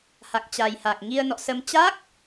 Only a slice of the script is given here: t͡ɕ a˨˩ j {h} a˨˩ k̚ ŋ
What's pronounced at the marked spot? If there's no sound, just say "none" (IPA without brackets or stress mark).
h